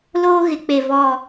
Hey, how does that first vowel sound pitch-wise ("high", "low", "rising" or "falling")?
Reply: high